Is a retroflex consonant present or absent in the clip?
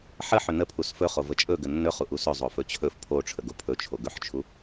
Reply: present